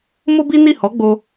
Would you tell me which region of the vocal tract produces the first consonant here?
lips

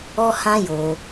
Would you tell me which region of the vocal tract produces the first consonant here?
throat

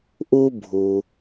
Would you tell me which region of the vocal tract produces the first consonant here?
throat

